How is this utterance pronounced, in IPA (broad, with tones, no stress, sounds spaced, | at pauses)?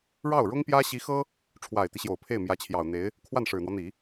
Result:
ɻ ɑ˥˩ ʊ̯ ɻ ʊ˥ ŋ p j ä˥ ɕ i˧˥ x ɤ˥ | ʈ͡ʂʰ w a˨˩ ɪ̯ t̪ i˦ ɕ j o˨˩ ʊ̯ pʰ e˥˩ ɪ̯ m j ä˧˥ t͡ɕʰ j ɑ˨˩ ʊ̯ n̪ e˧˥ ɪ̯ | kʰ w a˥˩ n ʂ ɻ̩˨˩ n̪ w ɔ˦ n̪ i˨˩˦